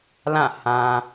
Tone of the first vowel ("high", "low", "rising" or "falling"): falling